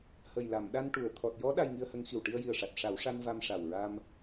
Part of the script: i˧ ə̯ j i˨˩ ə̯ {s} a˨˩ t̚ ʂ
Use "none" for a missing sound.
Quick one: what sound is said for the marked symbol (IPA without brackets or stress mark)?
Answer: ʂ